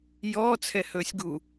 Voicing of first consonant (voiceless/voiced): voiced